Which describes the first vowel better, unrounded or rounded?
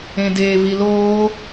unrounded